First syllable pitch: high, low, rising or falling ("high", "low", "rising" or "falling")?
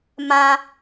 high